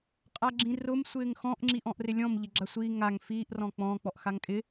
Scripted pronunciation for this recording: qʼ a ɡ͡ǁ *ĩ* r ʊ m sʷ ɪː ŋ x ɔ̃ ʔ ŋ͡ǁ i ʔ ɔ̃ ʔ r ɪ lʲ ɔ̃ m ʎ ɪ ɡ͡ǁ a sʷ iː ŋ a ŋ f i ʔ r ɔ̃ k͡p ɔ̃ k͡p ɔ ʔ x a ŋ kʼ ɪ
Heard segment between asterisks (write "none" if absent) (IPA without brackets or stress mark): ĩ